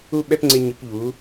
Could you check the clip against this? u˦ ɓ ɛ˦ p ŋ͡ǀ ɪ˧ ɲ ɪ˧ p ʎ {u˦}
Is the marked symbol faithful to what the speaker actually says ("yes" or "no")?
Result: no